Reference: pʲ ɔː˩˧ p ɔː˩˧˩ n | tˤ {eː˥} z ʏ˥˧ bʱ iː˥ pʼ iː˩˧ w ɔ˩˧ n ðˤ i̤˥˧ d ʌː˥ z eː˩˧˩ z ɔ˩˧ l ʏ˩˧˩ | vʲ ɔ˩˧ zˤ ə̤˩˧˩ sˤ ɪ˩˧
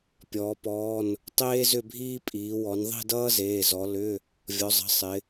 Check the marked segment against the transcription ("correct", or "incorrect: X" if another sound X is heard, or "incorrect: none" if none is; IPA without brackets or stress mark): correct